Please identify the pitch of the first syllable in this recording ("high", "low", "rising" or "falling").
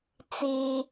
low